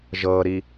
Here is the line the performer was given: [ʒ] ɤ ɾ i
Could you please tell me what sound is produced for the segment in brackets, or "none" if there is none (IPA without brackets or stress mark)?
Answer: ʒ